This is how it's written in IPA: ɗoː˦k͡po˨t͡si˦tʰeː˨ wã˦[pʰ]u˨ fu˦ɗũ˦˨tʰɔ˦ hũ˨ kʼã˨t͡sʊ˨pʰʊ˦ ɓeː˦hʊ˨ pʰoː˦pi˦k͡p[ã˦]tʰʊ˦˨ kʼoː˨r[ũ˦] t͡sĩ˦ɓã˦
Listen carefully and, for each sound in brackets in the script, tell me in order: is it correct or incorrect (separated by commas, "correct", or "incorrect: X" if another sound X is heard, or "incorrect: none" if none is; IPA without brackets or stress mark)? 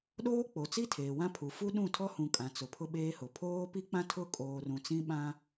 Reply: correct, correct, incorrect: ũ˨